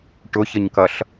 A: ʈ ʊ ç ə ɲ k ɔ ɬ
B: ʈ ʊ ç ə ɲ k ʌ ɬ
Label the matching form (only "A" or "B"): B